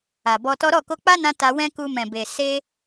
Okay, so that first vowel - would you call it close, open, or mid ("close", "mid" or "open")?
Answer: open